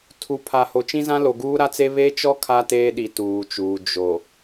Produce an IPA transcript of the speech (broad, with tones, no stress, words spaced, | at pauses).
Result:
tʰu˨ pʰa˨ho˨ t͡ʃĩ˦zã˦lo˨ ɡuː˦ɾa˦t͡se˦ βe˦t͡ʃɔ˦ kʰa˦teː˦ɗi˨ tuː˨t͡ʃuː˨ d͡ʒo˨